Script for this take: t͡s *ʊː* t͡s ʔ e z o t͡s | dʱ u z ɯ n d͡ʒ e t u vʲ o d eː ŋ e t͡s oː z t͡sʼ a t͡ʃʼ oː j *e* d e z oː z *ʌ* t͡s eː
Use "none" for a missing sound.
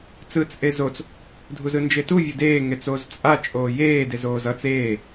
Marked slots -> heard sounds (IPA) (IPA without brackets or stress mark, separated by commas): ɯː, eː, ʌ